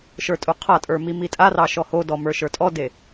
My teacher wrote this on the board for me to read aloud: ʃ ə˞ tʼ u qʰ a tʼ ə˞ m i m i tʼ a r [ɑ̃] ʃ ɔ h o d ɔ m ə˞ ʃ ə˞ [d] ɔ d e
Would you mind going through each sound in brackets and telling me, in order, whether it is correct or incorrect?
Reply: incorrect: ɑ, incorrect: tʼ

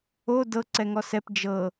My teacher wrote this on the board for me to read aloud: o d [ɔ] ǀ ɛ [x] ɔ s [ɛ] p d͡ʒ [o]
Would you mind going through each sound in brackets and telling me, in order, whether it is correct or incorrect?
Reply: incorrect: ɤ, incorrect: ŋ, correct, incorrect: ɤ

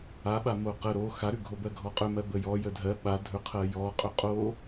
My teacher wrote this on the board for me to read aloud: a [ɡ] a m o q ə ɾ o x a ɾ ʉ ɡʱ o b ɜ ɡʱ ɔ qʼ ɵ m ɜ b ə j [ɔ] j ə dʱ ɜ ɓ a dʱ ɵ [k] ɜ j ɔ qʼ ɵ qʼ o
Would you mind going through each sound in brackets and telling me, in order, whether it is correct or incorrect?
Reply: incorrect: ɓ, correct, incorrect: qʰ

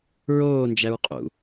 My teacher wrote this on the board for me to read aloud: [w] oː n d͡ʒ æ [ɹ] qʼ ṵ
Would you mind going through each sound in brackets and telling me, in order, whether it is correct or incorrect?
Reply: incorrect: ɹ, correct

